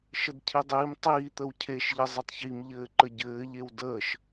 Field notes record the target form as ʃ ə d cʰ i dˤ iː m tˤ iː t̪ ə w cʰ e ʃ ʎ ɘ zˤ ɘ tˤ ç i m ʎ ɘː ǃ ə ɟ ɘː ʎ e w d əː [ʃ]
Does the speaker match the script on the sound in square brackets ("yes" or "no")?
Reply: yes